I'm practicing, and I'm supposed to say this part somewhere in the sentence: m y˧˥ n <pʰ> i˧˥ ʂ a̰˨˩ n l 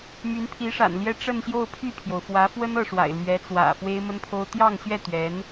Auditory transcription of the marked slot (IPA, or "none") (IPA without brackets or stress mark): pʰ